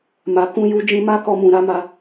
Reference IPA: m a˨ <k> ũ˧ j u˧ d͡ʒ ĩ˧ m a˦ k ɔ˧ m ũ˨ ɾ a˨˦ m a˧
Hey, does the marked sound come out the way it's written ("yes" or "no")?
yes